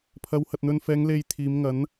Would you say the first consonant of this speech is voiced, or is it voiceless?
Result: voiceless